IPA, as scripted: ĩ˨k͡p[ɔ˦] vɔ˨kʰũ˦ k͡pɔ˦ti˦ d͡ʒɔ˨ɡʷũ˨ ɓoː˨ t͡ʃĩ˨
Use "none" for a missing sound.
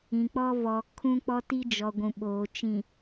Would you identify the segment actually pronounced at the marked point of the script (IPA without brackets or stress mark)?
ɔ˦